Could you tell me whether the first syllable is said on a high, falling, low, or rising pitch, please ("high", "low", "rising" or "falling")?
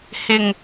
low